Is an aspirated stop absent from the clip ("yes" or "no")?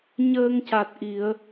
yes